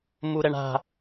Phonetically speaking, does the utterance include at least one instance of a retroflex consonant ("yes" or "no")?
yes